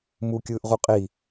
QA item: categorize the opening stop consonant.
plain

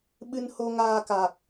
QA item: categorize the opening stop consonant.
implosive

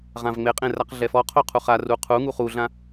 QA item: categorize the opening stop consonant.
ejective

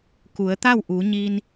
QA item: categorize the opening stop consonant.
plain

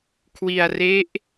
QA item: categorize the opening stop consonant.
aspirated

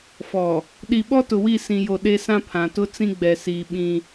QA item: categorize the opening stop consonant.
implosive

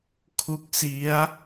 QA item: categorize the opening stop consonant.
aspirated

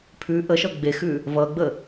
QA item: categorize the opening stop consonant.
aspirated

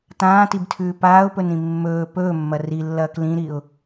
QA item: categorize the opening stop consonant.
plain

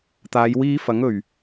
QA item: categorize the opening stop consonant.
plain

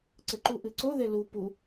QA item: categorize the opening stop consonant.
click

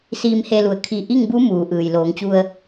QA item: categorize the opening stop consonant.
aspirated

